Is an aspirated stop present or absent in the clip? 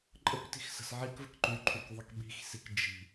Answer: present